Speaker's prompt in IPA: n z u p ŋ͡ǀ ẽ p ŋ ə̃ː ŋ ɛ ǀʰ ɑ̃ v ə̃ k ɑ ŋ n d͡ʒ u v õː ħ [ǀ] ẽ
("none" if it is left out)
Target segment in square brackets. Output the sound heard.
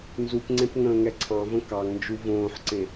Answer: ǀ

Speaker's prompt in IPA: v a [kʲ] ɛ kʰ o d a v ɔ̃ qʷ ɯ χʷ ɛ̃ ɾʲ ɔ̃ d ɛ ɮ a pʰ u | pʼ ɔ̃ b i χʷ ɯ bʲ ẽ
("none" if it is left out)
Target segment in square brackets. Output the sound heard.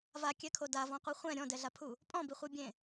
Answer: kʲ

